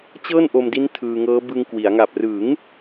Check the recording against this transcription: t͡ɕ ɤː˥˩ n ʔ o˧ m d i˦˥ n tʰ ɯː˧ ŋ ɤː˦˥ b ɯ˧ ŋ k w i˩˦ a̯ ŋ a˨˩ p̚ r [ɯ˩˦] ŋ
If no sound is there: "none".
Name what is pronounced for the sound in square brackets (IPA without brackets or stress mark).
ɯ˩˦